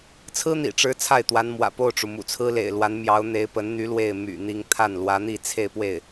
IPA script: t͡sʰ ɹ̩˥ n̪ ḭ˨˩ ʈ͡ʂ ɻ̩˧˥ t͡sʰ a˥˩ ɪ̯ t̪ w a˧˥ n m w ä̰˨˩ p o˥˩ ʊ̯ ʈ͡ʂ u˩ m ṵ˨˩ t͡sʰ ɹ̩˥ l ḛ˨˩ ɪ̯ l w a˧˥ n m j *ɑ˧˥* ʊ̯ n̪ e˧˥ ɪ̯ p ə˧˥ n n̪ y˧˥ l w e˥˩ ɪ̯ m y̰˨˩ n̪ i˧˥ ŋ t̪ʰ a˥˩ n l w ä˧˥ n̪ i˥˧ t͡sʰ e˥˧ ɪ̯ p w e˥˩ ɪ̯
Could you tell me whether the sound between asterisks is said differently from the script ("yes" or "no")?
no